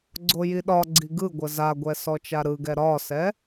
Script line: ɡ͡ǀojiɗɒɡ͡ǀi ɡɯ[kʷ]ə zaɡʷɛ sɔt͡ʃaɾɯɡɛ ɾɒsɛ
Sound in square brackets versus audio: incorrect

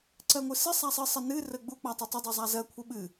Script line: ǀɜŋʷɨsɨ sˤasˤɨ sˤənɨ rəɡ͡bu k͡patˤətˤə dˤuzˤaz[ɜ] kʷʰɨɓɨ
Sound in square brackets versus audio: correct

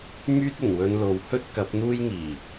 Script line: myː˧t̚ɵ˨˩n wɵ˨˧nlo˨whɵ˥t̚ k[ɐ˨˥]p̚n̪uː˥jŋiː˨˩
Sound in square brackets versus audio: correct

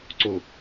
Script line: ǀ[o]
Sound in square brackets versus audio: correct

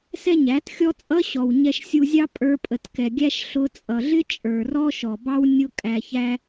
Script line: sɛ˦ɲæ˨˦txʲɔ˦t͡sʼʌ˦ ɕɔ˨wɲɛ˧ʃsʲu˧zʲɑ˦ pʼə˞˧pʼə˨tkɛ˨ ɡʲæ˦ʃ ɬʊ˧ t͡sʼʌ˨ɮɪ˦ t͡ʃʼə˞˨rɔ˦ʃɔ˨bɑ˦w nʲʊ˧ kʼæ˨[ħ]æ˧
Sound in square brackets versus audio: incorrect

